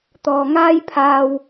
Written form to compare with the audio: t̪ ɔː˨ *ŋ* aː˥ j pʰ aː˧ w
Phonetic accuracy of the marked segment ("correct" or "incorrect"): correct